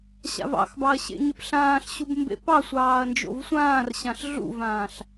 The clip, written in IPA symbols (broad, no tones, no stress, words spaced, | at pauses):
ɕa̰vɑ̰xbɑɐ̯ ɕḛɲɪpɬãːɬɕub mbḛpɑsʷɑːɐ̯ nd͡ʒo̰vsʷãːrɕãɬ ɮṵvãːɬ